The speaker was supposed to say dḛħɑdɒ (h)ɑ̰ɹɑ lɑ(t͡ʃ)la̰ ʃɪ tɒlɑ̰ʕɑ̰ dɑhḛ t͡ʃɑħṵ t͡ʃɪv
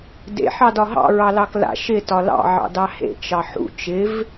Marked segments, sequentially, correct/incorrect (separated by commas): incorrect, incorrect